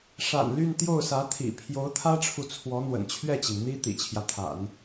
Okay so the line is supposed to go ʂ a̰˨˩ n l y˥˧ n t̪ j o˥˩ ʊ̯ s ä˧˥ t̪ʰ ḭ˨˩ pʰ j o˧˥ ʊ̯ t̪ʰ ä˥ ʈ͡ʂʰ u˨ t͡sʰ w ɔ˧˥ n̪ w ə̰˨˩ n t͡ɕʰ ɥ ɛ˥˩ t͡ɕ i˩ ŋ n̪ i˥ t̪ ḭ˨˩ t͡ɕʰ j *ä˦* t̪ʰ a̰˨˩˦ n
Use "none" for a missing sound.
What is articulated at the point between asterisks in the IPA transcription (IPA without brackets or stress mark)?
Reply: ä˦